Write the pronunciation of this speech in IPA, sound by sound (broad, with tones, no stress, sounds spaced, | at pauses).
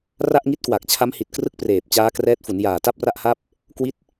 r a˥˩ ʔ ŋ i˦˥ t̚ k w a˨˩ k̚ t͡ɕʰ a˦˥ m h i˨˩ t̚ k r ɯ˥˩ k̚ p r eː˨˩ p̚ t͡ɕ aː˦˥ k r ɛː˦˥ t̚ f u˩˦ n j aː˨˩ t a˥˩ p̚ r a˥˩ ʔ h a˥˩ p̚ | k w i˥˩ t̚